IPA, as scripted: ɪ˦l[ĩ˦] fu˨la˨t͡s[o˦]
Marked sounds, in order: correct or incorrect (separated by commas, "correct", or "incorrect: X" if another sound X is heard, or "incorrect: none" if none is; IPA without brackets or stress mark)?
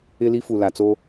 incorrect: i˦, correct